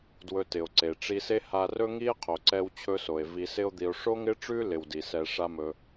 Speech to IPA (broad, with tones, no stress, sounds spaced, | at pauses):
d w ɵ˧ t ɪ˩ o̯ ǀ e˩ ʈ͡ʂ i˧ s e˥ h a˧ r ɵ˥ ŋ i˥ e̯ qʰ o˩ ǀ ɛ˧ w t͡ɕʰ ɵ˧ s o˩ e̯ v i˧ s ɪ˥ o̯ d̪ i˧ o̯ ʂ o˥ ŋ ɪ˥ ʈ͡ʂ ʉ˥ l ɪ˧ w d i˩ s ɛ˧ ʂ a˥ m ɵ˧